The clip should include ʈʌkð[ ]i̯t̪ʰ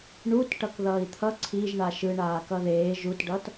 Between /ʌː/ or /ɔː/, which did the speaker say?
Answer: ʌː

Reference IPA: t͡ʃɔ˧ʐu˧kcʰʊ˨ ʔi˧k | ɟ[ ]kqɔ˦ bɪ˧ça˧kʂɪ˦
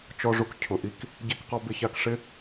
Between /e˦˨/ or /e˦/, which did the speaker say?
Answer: e˦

